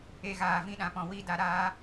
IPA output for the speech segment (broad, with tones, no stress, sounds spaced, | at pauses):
e˧ ɣ aː˨ v ĩ˧ ɗ ã˨ p ɔ̃˨ w i˧ d a˨ ɾ aː˧